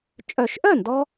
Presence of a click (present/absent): absent